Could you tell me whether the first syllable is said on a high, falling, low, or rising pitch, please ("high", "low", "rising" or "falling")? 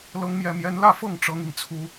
high